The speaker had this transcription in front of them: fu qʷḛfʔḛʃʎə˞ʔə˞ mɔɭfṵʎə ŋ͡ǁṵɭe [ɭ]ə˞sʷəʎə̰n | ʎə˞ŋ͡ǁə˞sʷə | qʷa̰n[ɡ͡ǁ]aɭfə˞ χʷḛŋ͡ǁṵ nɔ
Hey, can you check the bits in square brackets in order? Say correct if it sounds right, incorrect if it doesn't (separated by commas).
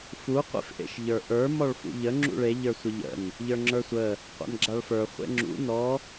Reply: incorrect, correct